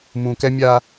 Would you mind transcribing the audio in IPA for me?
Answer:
mũ˨kɛ˦mʲa˦

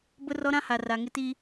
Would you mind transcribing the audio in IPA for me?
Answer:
bʊ˦ rɔ˦ɾã˦ha˨ ra˨ŋɪ˦ti˦

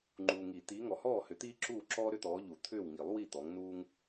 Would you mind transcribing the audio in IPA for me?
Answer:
ŋ͡ǃuː˨ŋi˨˩˦ t̪iː˨˦ ŋɔ˨hɔː˥˨ hʏ˨˦t̪iː˥ ǁuː˥˨ ǁɔː˥ɾʏ˥t̪ɔː˨˦ʎu˨˩˦ t̪ʰʏː˥˨wŋi˨˩˦lˠ wi˥˨t̪ɔ˨˦ŋnuː˥ŋ

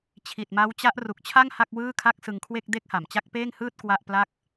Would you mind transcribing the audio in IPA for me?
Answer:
t͡ɕʰi˨˩t̚ma˦˥wt͡ɕa˦˥ʔ ru˨˩k̚t͡ɕʰa˥˩ŋ ha˥˩k̚wɯː˥˩kʰa˥˩k̚ sɯ˧ŋkʰwe˥˩k̚ de˥˩k̚ha˨˩mt͡ɕa˥˩k̚ peː˥˩ŋhɯː˥˩t̚ kwa˥˩ʔ pla˥˩k̚

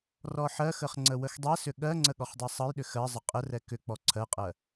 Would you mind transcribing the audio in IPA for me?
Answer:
rɔħɜxəχ ŋ͡ǀəwəxdˤɛsʏ ɠɜŋ͡ǀə ɠɔχdˤɤsˤɤjɗʏ xɜzˤə qʼərɛ kʏ k͡pɔǀʰɜqʼɜ

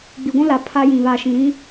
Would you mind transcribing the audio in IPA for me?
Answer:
ɡ͡bi˨ɡʷũ˦la˨ pʰa˦jĩ˨ βaː˨ʃĩ˨ɾĩ˦

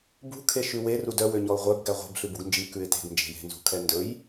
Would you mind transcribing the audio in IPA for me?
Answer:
bṳ kʰeʃʉwer udœ wøɲɔʊ̯ʁʷœb ɡæʁʷe̤b ɬʉbuɡnd͡ʒi kʉɪ̯te̤ɡ nd͡ʒe̤je̤ nzṳkʰɛndɵj

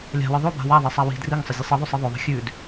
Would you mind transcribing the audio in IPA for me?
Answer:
lʲa̤wɨ ðˤoba̤ waðˤesˤa wi̤ driŋsˤɐzʲɨ sˤiðˤʉsˤi ðˤɵðˤi̤ xʲʉd

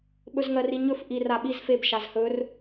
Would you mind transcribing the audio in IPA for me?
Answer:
ɓɵzŋɜriɲɵf ʔir aɓiz feb ʃazhɵr

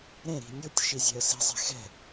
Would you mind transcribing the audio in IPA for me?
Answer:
ɾẽ ɾi̤nʲutʲ ʃizʲɛ̤ə̯si̤ zˤɛ̤xɛ̤

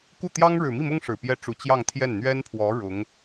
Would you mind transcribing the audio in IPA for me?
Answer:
ku˥˩ t̪jɑ˥ŋɻɻ̩˨˩ mi˥˩mʊ˥ŋ ʂɻ̩˨˩pjɛ˥ ʈ͡ʂu˨˩ t͡ɕjɑ˥˧ŋt̪ʰjɛ˥˩n n̪ɥɛ˥npʰwɔ˧˥ ɻʊ˧˥ŋ

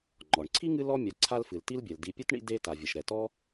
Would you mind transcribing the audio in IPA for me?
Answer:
ŋ͡ǃɔ˩ɳǀʰi˥ŋɨ˦ lɔ˥mʲa˨ ǀʰa˦lfɨ˩l ti˦lbʲɛ˩l di˨pʲɛ˥tɳḭ˦ de˦ ta˩vʲɐ˩ʃɾɛ˩tɔ˥

